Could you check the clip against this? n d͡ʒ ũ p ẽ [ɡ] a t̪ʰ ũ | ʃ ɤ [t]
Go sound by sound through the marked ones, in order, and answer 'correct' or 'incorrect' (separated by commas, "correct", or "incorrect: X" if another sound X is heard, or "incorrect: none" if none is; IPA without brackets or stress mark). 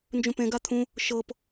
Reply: correct, incorrect: p